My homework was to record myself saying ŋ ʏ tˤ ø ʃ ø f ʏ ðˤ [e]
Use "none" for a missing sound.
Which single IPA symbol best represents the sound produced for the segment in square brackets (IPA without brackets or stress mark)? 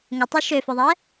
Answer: ɛ